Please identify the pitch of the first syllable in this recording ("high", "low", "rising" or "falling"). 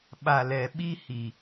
low